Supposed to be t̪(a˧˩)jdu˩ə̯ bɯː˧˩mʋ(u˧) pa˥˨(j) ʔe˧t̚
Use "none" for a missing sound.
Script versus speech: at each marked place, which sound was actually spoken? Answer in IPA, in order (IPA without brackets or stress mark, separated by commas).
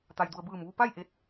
a˩, u˧, j